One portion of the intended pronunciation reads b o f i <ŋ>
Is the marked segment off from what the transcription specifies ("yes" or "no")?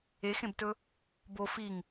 no